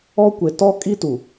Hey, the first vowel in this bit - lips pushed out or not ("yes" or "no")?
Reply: yes